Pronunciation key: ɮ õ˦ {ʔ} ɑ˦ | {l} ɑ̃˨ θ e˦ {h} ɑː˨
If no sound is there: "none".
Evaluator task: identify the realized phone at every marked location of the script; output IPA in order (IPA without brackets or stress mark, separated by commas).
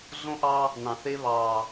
ʔ, n, β